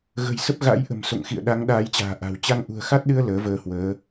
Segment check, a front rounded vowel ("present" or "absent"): absent